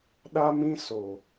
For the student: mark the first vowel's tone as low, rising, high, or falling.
high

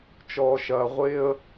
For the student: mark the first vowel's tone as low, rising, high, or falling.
low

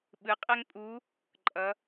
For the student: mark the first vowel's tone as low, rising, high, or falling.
rising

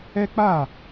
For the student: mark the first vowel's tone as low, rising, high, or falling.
high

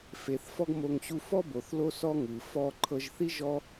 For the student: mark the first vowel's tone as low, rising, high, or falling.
low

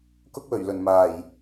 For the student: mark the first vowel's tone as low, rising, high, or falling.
high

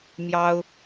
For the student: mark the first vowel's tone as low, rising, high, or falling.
high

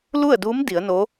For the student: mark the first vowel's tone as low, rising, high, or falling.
falling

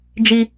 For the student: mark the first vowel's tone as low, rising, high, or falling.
high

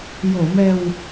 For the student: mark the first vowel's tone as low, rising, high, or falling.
low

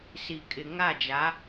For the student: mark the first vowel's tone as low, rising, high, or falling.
low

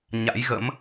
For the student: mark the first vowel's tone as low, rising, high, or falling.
rising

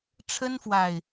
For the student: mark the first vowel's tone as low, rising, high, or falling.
high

